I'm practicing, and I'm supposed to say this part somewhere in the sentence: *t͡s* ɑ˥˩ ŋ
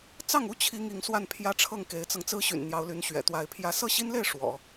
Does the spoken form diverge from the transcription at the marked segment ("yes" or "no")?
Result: no